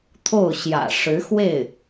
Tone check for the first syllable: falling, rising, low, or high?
falling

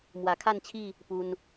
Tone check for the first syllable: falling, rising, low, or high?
low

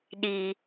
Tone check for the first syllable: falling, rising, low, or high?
high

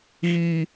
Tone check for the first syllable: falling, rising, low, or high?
low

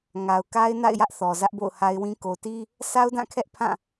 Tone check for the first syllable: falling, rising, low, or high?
low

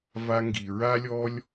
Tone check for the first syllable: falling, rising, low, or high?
high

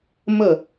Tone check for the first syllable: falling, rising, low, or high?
falling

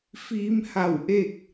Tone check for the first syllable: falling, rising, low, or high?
rising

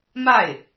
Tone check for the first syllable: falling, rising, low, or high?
falling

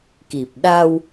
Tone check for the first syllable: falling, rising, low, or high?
low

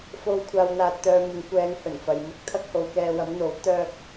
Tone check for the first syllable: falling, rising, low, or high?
low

